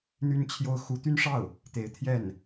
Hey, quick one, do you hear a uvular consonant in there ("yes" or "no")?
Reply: no